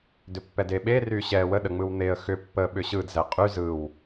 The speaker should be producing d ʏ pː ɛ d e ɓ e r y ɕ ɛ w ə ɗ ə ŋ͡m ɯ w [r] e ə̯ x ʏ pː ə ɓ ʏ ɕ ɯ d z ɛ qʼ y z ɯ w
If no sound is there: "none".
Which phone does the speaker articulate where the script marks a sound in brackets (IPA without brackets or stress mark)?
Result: n̪